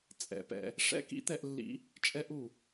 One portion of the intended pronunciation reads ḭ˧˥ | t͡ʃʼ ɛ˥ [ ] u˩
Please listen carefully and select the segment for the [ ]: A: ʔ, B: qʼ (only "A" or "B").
A